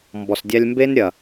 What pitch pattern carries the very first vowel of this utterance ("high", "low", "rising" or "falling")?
low